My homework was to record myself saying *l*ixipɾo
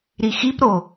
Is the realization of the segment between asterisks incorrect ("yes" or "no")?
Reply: yes